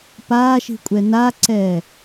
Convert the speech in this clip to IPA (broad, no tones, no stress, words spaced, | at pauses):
paːʃi̤kʷʼɛ naǀɛː